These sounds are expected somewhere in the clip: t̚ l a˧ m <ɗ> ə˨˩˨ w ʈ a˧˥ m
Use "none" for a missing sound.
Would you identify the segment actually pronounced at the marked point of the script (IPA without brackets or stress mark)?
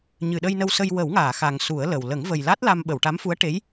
ɓ